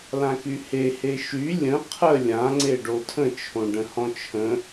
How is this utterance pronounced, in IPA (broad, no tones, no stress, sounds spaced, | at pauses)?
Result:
l ã k y h e h e ʃ y lʲ ə̃ qʰ ə lʲ ã ŋ͡ǀ e ɖ o tʰ ə̃ t͡ʃʰ õ ɖ ə̃ h ɔ̃ t͡ʃʰ ə̃